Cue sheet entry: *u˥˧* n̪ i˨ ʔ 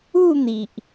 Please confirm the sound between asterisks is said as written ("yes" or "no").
yes